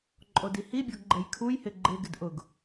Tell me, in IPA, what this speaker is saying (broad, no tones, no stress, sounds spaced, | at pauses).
ǃʼ o d i h i bʲ ɔ ɡ ɡ͡ǃ ɛ j kʰ u j h ɪ ɡ͡ǃ ɪ ɡ ɪ d ʔ ʊ ɡ